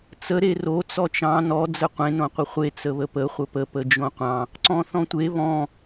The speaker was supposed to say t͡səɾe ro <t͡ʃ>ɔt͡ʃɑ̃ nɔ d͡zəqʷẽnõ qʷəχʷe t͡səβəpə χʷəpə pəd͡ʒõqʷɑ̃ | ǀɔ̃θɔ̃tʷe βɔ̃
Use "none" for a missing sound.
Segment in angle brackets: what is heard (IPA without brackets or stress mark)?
t͡s